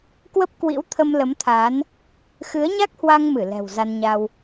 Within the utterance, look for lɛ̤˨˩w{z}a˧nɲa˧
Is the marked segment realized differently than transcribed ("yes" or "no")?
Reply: no